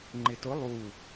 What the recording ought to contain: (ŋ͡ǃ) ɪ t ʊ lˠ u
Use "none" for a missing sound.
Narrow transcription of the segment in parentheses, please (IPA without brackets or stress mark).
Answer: ŋ͡ǃ